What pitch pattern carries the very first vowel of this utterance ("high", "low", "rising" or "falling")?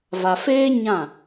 low